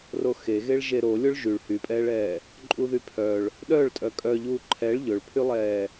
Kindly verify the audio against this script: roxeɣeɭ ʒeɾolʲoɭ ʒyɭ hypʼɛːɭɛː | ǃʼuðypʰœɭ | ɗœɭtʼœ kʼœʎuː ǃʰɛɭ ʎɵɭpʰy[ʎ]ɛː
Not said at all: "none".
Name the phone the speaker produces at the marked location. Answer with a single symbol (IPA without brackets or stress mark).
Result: lˠ